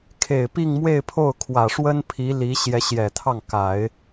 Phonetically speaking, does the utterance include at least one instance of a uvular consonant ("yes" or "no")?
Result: no